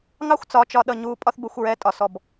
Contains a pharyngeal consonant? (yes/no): no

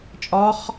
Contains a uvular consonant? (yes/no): yes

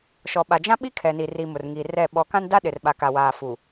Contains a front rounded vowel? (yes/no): no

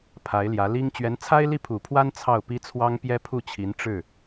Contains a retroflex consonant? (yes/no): yes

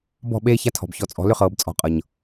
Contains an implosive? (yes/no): yes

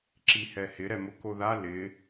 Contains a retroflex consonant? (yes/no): no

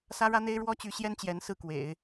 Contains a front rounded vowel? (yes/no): yes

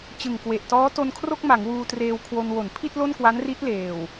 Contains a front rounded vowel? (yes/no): no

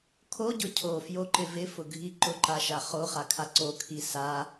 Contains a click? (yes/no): yes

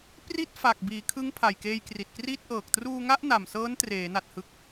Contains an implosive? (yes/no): no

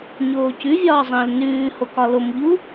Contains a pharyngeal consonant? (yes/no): no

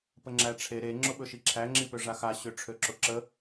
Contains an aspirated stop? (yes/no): yes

